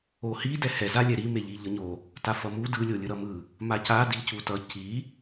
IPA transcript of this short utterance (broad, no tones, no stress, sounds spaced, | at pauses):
o h i d ɛ h ɛ z a lʲ ɛ ɾ i m e ʎ i ʎ ʌ ɲ o | t a f ʌ m u d ɯ lʲ o lʲ ɯ ɾ ʌ m ɯ | m a c a d i c u t ʌ c i